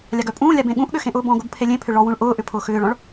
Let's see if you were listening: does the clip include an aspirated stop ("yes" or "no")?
yes